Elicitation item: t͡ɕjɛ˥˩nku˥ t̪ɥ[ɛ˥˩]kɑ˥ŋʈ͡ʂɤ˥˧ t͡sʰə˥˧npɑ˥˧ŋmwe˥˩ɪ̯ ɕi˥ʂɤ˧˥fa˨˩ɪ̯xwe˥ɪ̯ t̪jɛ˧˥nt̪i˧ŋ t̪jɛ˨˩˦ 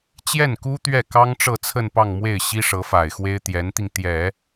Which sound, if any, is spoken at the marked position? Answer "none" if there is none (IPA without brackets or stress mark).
ɛ˥˩